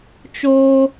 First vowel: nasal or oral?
oral